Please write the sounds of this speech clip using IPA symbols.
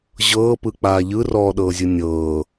ʑ ɤː p ɯ k͡p aː ʎ ɯ r ɔː ɗ ɤː zʲ ɯ nʲ ɤː

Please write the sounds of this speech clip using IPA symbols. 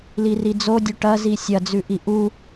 l i r i d͡z o dʲ ɵ ʈ ɐ z i sʲ ɐ d͡z ʉ ʔ i ʔ u

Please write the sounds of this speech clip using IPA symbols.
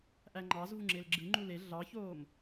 ʔ æ ŋ͡ǃ ɑ z v u ŋ͡ǁ e l ɡ͡ǁ ɯ ŋ͡ǃ u l e ɮ ɑ ç oː m

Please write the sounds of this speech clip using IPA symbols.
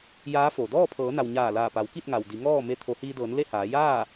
j aː˧˥ f o˩ d ɔː˥˨ pʰ ɤː˩˧ n a˩ w ɲ aː˧˩ l aː˧˩ p a˩˧ w k i˥˨ t̚ ŋ a˩ w d i˩˧ ŋ ɔː˥˨ m e˧ t̪ʰ o˩˧ h iː˧ d ɤː˩˧ n l e˥˨ h aː˩˧ j aː˥˨

